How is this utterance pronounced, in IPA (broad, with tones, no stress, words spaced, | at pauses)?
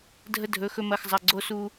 dʱə˧ dʱɵ˩˧˩xɵ˧mɐ˩˧˩xzˤɐ˩˧˩ ɡ͡ǀo˧su˧